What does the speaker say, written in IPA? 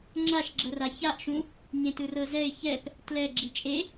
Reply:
ŋ͡ǁaʃɡ͡ǁɤra çaʔʃũ | ɲẽtɯrɤzɛɪ̯ çɛp | tlɛ ɡ͡ǁit͡ʃʼe

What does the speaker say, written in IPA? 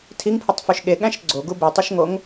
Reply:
tʰiŋpʰɯtˤføʃ ɠeɠæ̃ʃ ɡ͡ǀoɡu bitˤøʃŋoŋ

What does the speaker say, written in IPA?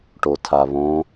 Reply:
ʈotʰaβõ

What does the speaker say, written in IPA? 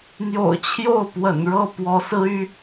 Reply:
n̪jo̰˨˩ʊ̯t͡ɕʰjo˥˩ʊ̯pwə̰˨˩n ɻɤ˥˩ pwɔ˧˥sɹ̩˥y˥

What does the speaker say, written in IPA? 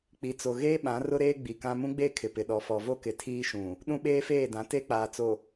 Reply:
k͡pi˨t͡so˨ɣeː˦ ɓã˨˦rʊ˦ɾeː˦ ɡ͡bi˨kã˦ mũ˦ɡ͡be˦˨ kʰɪ˨pɪ˨ɗɔ˨ fɔ˨vo˦kɪ˨ tʰiː˦ʃũ˨ | ɗũ˦ɓeː˦feː˦˨dã˨˦ te˦k͡paː˨t͡so˨

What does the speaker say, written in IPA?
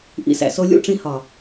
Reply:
ʔḭ˧sæ̰˨so˧ lʲṵ˦˨ʈ͡ʂĩ˧hɒ˨

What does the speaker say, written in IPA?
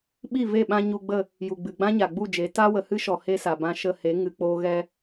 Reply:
ɓi˦˨ve˦˨ɓã˧ ɲu˧ɡ͡bə˦˨ | ju˨ɡ͡bɨ˨ ɡ͡bã˦ɲa˨ɡ͡bu˦˨d͡ʒe˨˦ ta˧wə˨ hɨ˦ʃɔ˨ he˦sa˨bã˧ ʃə˧he˨˦ ŋɨ˧k͡poː˦ ɣɛ˧

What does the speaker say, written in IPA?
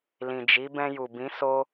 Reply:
lĩ˨d͡ʒi˨˦ bɛ̃˧ju˨bĩ˨˦ so˦

